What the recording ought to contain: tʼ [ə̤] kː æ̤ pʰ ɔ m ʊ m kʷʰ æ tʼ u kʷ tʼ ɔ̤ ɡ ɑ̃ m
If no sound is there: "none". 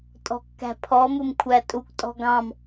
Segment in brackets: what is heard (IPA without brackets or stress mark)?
ɔ̤